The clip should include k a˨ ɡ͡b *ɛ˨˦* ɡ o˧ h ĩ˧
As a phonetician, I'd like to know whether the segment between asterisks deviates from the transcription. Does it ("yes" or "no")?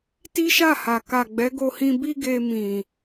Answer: no